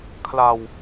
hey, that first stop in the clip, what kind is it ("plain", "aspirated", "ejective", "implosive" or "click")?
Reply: aspirated